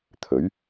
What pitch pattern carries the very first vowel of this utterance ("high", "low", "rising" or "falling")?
rising